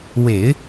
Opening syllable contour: low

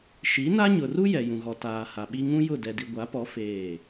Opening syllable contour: rising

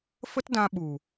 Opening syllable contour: high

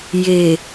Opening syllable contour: low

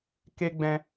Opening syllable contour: high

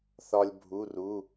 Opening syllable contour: high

